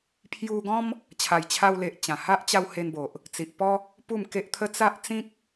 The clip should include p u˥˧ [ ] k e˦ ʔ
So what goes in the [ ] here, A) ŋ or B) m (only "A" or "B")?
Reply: B